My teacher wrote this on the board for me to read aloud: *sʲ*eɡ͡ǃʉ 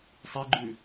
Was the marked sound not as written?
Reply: yes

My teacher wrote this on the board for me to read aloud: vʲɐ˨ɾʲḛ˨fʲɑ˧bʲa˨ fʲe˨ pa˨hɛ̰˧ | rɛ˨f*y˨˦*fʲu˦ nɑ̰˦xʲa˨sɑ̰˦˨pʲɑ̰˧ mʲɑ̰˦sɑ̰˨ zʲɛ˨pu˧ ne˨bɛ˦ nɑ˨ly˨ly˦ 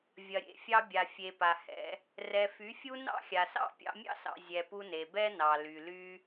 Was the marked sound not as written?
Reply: no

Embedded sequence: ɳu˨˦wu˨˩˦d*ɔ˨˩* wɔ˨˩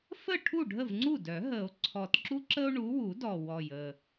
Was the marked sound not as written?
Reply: no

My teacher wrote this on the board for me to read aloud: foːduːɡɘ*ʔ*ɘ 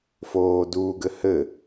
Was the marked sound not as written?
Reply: yes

